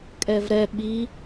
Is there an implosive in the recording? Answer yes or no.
yes